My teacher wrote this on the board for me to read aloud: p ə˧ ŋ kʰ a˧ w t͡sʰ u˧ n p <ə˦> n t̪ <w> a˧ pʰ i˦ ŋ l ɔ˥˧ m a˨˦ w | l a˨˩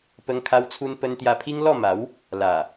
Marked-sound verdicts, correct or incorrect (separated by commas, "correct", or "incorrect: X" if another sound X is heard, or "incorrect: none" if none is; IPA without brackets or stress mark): correct, incorrect: j